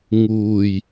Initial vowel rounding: rounded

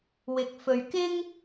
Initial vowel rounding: unrounded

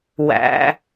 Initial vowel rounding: unrounded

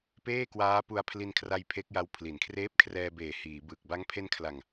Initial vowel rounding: unrounded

